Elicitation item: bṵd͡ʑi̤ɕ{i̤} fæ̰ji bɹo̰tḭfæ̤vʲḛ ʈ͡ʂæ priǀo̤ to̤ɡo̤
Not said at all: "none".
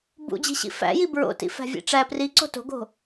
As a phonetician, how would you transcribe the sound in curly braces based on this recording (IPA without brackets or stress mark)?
ḭ